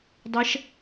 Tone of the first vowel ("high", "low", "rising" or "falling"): rising